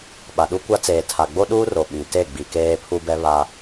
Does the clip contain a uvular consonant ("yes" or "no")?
no